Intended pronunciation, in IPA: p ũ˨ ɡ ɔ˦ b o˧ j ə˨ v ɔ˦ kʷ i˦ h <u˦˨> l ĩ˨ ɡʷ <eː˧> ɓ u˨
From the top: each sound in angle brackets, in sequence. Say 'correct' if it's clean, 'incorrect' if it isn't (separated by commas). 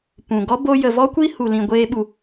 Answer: incorrect, correct